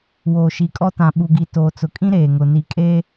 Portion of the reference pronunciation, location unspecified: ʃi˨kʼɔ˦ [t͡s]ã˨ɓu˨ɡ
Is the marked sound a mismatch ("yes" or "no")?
yes